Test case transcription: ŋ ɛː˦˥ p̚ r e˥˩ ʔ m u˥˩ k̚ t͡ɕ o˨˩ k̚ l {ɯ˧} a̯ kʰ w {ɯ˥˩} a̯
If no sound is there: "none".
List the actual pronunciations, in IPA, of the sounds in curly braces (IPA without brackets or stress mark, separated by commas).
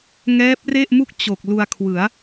u˧, ɯ˩˦